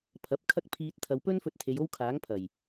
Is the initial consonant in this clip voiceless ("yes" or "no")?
yes